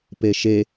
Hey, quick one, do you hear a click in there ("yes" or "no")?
no